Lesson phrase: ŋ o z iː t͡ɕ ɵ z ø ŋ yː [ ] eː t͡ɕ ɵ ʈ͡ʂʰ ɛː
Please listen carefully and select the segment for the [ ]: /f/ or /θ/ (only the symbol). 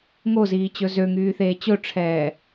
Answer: θ